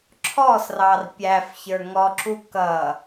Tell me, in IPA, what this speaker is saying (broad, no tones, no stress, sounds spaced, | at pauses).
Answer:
ǁʰ ɔ s r ɑ r pʲ æ f ç ə˞ ŋ ɔ ǁ u k ʌ